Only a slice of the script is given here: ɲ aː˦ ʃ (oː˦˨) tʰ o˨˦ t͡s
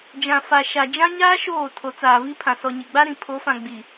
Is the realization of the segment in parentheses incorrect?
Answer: no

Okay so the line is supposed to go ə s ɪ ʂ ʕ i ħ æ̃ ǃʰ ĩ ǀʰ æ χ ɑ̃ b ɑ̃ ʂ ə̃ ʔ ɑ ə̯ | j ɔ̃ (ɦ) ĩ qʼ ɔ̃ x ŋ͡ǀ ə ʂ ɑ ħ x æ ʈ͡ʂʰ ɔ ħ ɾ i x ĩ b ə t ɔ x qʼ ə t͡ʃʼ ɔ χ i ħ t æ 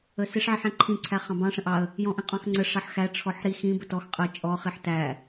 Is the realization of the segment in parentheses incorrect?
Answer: yes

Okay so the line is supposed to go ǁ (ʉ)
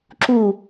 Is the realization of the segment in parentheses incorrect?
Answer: yes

